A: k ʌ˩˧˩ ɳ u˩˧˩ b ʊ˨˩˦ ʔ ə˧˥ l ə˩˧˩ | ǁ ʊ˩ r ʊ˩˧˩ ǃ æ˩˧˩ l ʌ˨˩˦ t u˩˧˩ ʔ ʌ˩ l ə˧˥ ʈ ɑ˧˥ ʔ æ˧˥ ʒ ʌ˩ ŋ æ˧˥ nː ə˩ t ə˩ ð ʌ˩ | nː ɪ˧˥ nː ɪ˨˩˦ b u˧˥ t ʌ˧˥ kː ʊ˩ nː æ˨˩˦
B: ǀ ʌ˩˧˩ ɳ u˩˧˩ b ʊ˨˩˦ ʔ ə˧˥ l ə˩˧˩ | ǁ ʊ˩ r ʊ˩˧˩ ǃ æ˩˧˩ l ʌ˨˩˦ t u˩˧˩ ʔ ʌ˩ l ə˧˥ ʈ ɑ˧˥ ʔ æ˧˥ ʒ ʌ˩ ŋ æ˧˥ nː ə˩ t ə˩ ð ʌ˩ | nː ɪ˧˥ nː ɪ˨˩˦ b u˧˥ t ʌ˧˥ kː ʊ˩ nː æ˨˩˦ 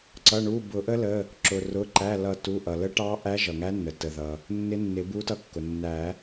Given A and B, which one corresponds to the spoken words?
B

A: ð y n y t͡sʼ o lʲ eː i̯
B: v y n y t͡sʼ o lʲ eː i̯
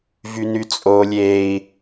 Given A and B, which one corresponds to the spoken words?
B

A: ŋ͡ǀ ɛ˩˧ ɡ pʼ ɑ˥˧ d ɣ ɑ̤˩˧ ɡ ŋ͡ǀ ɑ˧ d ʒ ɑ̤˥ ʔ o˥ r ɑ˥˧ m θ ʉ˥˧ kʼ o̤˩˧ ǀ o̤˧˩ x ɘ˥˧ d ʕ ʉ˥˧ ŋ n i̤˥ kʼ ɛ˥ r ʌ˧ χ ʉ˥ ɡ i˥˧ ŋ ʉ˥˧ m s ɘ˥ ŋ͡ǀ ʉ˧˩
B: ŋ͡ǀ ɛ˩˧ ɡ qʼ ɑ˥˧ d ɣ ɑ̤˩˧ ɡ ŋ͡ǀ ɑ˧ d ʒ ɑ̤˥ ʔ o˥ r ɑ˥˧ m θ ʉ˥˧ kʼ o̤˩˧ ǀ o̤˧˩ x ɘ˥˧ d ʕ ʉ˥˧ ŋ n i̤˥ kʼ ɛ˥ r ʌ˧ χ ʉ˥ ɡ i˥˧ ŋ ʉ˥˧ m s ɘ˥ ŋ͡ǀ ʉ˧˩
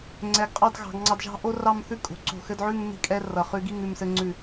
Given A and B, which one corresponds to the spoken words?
B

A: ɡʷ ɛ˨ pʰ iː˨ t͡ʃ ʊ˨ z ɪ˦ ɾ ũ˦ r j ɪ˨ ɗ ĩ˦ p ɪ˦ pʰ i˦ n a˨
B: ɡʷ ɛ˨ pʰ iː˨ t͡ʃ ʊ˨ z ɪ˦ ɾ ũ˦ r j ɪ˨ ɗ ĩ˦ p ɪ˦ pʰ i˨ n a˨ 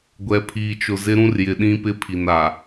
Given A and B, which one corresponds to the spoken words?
B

